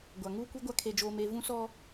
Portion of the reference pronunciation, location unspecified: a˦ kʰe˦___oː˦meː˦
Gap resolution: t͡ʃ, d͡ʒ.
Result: d͡ʒ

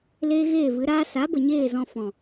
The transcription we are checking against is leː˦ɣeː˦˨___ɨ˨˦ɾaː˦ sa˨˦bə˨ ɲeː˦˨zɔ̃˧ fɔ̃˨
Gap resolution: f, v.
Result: v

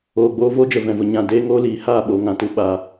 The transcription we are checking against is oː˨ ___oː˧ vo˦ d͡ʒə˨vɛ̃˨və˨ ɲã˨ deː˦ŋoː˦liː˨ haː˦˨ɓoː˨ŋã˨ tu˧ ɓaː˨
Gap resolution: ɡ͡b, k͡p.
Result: ɡ͡b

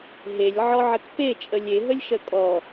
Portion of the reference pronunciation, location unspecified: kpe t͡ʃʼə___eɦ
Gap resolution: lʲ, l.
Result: lʲ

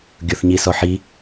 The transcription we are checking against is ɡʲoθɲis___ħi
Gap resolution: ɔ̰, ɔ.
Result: ɔ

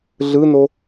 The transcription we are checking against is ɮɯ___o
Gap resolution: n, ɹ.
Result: n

